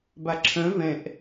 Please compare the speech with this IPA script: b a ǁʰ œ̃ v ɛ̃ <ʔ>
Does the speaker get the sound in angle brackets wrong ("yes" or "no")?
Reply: no